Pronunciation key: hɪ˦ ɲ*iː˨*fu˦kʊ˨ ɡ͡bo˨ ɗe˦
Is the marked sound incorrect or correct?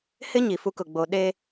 incorrect